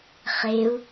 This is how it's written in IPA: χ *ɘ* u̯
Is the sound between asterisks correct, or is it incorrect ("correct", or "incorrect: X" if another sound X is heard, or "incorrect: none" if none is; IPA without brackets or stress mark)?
incorrect: e